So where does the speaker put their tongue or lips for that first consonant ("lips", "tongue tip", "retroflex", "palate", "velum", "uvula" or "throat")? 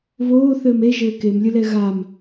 lips